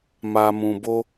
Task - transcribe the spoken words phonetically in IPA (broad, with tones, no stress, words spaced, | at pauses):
ma˧mũ˧bo˦